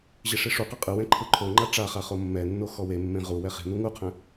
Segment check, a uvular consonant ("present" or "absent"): present